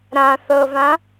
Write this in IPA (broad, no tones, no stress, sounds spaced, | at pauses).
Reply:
ɾ ã θ ɤ v ã